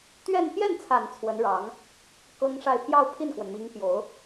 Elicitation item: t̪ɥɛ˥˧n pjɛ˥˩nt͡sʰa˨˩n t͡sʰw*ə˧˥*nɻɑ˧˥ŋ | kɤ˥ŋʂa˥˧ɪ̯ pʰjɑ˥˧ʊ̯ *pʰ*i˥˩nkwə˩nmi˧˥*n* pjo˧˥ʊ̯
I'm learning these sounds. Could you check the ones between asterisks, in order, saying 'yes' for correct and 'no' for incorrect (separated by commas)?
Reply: yes, yes, no